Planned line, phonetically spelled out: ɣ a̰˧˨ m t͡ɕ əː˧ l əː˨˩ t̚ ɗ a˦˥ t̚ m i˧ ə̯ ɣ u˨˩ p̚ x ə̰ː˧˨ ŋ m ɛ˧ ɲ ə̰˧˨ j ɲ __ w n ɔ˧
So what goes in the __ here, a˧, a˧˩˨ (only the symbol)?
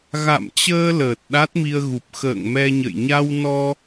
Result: a˧